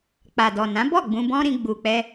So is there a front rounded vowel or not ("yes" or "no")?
no